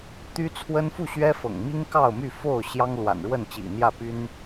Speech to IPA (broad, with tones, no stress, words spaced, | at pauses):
t̪y˦t͡sʰwə˦n fu˥˨ɕɥɛ˦fɤ̰˨˩ŋ mi˦ŋ kɑ˥˨ʊ̯my˥˨fo˥˨ʊ̯ ɕjɑ˦ŋ lwa̰˨˩nɻwə˥˨nt͡ɕḭ˨˩n̪jä˥˨ py˦n